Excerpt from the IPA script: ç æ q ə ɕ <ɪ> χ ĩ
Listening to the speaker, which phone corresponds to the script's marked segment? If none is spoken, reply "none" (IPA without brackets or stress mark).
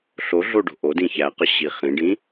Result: i